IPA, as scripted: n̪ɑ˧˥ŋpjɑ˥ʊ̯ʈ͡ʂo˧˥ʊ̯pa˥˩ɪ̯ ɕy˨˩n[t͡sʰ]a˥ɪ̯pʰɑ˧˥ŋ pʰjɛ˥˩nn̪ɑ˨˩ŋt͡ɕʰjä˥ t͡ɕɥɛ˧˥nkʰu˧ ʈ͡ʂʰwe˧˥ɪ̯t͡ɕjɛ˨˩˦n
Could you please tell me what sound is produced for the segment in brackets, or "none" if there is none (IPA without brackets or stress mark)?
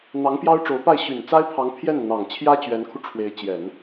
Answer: t͡s